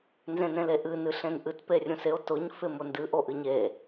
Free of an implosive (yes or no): yes